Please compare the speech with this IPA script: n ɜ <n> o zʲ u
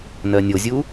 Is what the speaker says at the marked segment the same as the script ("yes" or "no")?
no